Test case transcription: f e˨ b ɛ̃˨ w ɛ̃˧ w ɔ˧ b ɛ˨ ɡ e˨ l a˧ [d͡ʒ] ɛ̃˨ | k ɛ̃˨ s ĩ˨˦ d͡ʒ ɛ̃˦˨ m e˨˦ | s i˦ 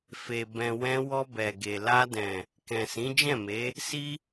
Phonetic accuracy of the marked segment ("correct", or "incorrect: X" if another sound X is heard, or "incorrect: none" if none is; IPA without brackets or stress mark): incorrect: d